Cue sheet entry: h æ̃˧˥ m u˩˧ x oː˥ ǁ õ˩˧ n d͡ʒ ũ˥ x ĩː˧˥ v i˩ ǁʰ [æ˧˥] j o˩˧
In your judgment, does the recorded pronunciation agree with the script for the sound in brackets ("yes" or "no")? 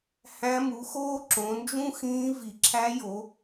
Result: yes